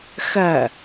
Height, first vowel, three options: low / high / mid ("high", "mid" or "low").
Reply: low